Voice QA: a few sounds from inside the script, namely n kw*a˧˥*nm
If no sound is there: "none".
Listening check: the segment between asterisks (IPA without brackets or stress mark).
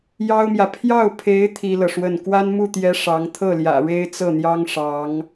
a˥